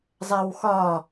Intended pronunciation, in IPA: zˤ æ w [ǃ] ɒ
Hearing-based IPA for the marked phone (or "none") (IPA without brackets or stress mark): x